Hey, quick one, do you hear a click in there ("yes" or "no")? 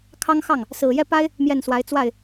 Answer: no